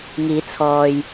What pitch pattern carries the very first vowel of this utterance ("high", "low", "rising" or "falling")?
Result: rising